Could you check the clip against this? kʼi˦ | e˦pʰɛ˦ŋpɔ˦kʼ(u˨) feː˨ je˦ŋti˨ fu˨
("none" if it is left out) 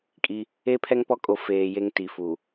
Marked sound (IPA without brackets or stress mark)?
o˨